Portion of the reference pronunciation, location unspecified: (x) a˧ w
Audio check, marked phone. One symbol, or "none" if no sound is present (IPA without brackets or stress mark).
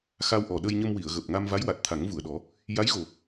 x